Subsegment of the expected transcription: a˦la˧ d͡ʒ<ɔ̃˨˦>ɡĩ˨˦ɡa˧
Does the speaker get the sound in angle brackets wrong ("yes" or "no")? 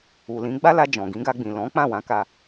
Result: yes